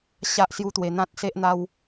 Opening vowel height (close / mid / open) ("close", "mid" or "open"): open